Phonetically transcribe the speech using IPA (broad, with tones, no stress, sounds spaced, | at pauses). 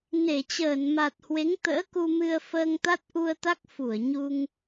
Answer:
n e˧˩ t͡ɕ əː˧˩ n m a˨˩ t̚ h w e˨˦ ŋ t̪ ə̰ː˧˥ k u˧ m ɨ˧ ə̯ f əː˧ ŋ t̪ a˦˥ t̚ ʔ u˧ ə̯ t̪ a˦˥ k̚ f u˧˩ ə̯ ɲ u˧ ŋ